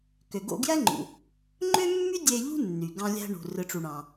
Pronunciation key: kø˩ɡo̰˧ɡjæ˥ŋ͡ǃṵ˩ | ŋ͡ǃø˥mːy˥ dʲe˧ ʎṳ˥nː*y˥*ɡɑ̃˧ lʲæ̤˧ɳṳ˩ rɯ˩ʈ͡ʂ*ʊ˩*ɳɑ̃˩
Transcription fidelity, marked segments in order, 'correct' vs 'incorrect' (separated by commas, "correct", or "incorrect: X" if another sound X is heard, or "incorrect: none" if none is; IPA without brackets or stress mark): incorrect: y˩, incorrect: u˩